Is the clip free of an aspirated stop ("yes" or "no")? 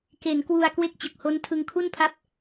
no